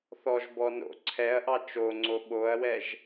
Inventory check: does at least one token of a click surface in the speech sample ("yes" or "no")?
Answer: yes